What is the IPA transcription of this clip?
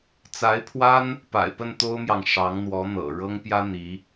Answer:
t͡sa˧˥ɪ̯pʰwa˥n | pa̰˨˩ɪ̯pə˥˩n t̪o˥ʊ̯mjɑ˨ŋ ʂɑ˧˥ŋn̪wɔ˧˥ n̪ɤ̰˨˩ ɻɤ˥ŋpjä˥ n̪i˧˥

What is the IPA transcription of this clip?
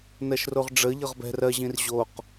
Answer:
nɜʃroʁɖ͡ʐə ʎɤʁbɛ̤r ɜʑĩr ʑoq

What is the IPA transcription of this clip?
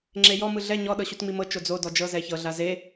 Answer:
ŋ͡ǁejɔ mɯɮɛ ɲɔ ɗɤɕutŋ͡mimɤ t͡ʃod͡zo dɔd͡ʒɤ zɛçɤ ɮaze

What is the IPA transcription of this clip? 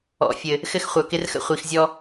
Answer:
ɔ̰˨fʲɘ˨ | xɘ˦xχʷœ˨kɪ˦rxə̰˦ χʷi˨xzʲɔ˦

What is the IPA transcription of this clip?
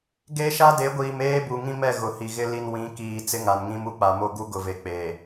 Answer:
ɡe˦ ʃa˦de˨˦ɡʷiː˨m eː˦bu˨ŋĩ˦mɛ˦˨ ɣʊ˨hi˨ɣɪ˦ li˨n wĩ˨˦kiː˨ t͡sɪ˦ŋa˨nŋĩ˦m u˦k͡pa˨mo˦ ɡu˦ɡʊ˨ve˨k͡pe˨

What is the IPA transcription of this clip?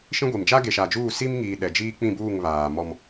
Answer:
ʃĩ˦ɡʷi˨m d͡ʒa˦ɡe˨ʃa˨d͡ʒuː˦˨ si˦mŋiː˨ ɗɛ˨d͡ʒiː˦k͡pĩ˦˨buː˦˨ŋ βaː˨mɔ˦m

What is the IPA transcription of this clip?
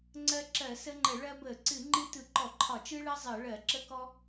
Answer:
ŋ͡ǀɜ˦ǁɜ˧˩˧sə˦ŋ͡ǃə˧˩˧ ɭɜ˦bə˧˩˧ ǀɨ˧˩˧ŋ͡ǃɨ˦ tɯ˧˩˧ǃɔ˧˩˧ǃʰɒ˧˩˧ t͡ʃɯ˦ɭɜ˦ zˤɜ˧˩˧ɭɜ˧˩˧ ǁə˦kɔ˦

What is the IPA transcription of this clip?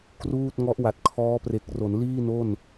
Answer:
kruː˥˩t̚ ŋɔ˦˥ʔwa˨˩t̚kʰɔː˦˥pre˨˩k̚ ro˩˦nliː˥˩no˥˩n

